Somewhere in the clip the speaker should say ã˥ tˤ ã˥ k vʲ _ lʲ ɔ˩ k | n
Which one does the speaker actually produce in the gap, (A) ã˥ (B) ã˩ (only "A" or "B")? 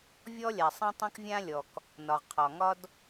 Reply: A